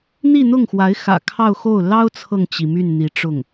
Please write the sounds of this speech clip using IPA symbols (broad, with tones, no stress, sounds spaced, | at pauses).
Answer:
n̪ i˥˧ n̪ ʊ˥˩ ŋ x w a˧˥ ɪ̯ x ä̰˨˩ kʰ ɑ˥˧ ʊ̯ x o˥˩ ʊ̯ l ɑ˥ ʊ̯ t͡sʰ ɤ˨ ŋ t͡ɕ i˩ m y˥˩ n n̪ i˧˥ ʈ͡ʂ ʊ˥˩ ŋ